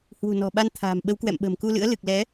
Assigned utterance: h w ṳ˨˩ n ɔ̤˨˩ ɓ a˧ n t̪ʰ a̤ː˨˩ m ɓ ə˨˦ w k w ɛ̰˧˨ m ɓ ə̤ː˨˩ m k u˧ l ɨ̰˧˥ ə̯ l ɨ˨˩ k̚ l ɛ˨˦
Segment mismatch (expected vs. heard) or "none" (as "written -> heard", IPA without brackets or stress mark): none